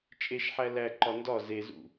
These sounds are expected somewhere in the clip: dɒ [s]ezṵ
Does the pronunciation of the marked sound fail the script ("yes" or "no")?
yes